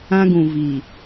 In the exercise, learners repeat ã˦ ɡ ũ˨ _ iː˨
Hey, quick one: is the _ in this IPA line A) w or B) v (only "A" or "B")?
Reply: B